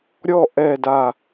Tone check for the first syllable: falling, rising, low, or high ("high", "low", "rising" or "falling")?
falling